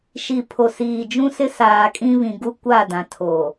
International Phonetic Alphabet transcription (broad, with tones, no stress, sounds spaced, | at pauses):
ʃ i˨ pʰ o˨ s iː˨ d͡ʒ ũ˦ s ɪ˦ s aː˨ kʼ ĩ˦ β ĩ˨ ɡ u˦ kʷ a˦˨ d ã˨ tʰ o˨